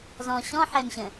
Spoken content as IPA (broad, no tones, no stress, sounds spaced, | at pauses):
z ɔ̃ ɕ ɔ̃ ħ ɛ m ɕ ə̃